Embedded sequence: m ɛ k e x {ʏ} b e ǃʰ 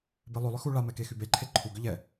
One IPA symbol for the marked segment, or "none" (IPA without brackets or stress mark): y